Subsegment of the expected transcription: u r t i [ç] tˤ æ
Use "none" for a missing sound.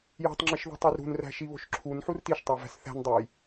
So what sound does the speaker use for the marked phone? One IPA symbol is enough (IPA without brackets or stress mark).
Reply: ʃ